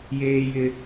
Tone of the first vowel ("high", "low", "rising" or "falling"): high